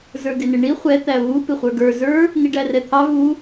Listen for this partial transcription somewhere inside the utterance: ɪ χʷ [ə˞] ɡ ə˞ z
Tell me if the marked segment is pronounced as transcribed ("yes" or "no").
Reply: yes